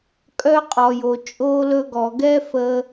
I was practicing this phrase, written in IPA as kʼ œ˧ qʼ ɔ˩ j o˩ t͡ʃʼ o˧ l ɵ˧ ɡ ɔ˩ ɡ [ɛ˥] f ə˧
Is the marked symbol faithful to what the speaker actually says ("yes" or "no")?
yes